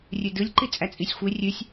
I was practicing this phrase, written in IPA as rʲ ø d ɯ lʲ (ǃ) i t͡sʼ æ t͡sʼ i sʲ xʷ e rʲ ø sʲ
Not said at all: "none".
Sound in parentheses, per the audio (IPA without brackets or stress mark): ǃ